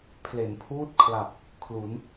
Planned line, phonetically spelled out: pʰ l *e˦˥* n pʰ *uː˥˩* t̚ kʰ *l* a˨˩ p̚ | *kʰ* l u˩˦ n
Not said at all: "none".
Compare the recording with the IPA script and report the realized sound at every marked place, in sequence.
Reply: e˩˦, uː˥˩, l, kʰ

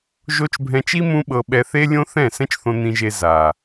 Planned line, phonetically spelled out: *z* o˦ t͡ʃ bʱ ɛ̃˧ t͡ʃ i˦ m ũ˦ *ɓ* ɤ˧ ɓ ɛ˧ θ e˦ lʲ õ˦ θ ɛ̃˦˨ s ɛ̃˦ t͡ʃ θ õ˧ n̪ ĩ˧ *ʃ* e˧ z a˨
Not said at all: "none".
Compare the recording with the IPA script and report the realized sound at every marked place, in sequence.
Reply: ʒ, ɓ, ʒ

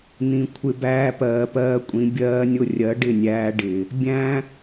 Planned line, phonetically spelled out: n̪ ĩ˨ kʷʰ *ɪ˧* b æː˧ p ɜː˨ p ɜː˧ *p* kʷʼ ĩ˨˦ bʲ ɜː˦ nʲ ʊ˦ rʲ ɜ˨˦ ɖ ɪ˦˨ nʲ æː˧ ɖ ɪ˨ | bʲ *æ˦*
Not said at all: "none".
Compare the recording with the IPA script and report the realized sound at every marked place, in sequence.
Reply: ɪ˧, none, æ̃˦

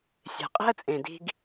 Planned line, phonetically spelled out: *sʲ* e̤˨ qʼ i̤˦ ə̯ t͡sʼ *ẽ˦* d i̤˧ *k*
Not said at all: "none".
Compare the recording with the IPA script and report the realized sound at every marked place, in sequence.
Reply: sʲ, ẽ˨, ɡ

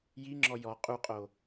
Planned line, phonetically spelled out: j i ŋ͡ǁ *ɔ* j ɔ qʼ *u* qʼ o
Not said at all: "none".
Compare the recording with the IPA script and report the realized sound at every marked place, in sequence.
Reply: ɔ, u

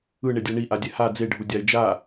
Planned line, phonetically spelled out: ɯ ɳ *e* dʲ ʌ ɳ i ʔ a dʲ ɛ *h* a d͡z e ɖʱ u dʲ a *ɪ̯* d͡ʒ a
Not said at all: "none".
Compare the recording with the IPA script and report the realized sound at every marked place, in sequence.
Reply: e, h, ɪ̯

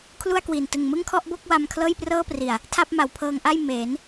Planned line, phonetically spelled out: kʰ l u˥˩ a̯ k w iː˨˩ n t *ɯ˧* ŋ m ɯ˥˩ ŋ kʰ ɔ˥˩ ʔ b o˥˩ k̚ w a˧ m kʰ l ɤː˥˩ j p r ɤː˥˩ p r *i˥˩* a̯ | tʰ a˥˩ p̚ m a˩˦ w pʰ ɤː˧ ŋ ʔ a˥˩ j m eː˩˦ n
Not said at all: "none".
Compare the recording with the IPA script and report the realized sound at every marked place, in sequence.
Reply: ɯ˨˩, i˨˩

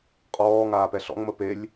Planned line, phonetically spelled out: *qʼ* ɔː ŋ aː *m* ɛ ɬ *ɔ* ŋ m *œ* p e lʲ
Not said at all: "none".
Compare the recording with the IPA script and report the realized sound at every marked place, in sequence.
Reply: qʼ, p, ɔ̰, ə

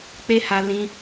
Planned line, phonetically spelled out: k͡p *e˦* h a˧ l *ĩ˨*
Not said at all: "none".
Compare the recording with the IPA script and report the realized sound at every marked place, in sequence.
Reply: e˦, ĩ˦

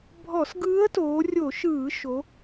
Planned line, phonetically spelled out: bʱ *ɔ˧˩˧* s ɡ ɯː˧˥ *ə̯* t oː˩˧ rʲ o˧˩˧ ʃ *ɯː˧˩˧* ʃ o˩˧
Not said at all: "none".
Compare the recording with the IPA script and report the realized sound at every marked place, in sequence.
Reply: ɔ˧˩˧, ə̯, ɯː˧˩˧

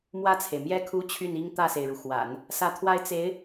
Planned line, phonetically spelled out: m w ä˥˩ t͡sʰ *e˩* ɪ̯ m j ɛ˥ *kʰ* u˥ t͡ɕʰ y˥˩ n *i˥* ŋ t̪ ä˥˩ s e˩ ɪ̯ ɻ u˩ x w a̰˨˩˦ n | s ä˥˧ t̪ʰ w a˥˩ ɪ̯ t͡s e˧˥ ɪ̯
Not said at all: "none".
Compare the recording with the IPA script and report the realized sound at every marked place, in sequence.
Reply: e˩, kʰ, i˥

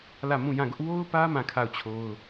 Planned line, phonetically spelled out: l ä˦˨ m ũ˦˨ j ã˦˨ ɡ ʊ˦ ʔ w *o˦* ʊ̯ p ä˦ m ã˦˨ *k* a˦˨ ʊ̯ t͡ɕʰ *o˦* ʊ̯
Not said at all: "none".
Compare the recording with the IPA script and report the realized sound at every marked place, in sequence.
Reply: o˦, kʰ, o˦

